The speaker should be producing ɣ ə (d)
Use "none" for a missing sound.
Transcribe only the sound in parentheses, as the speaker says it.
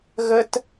t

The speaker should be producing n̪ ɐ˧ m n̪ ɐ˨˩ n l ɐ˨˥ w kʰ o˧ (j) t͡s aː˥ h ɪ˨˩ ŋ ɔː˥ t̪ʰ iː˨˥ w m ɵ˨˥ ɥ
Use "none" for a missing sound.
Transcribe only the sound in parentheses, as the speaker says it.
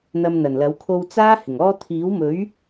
w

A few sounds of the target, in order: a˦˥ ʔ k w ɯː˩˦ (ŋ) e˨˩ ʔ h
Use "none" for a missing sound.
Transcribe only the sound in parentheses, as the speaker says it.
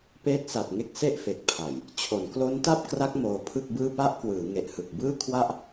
ŋ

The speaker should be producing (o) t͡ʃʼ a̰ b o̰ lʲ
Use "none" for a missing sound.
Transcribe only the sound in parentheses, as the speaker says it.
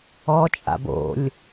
ɔ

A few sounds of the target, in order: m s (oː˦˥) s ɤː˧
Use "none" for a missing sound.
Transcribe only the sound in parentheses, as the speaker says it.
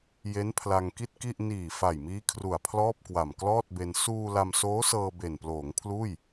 oː˦˥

